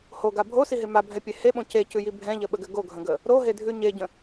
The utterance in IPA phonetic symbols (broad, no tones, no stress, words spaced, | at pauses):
hoɡa bʱosiɦe mabʱɛpʲe heɓõ cecʉji bʱɛ̃ʎəɓəɡɘ ɡoɡʱə̃ɡə | ɾoɦedʱʉ ɲeɟə̃